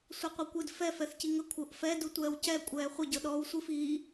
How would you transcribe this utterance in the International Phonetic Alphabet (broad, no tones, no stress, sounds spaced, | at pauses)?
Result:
sʷ ɤ qʷ ɤ kʷ ɨ d f ɛ f ɛ θ c i ŋ ə kʷʰ ɤ ʔ f ɛ d u tʷ ɛː w c ɛ kʷʼ ɛː χʷ ə ɟ ɤ ɗ ɔː w sʷ ɨ f iː